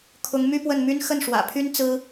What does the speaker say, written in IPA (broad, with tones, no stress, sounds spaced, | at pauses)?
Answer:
kʰ ʊ˧˥ ŋ m y˥ p w ə˥˩ n m y˥ n x ə˥˩ n ʂ w ä̰˨˩ pʰ y˥ n t͡s ɹ̩˥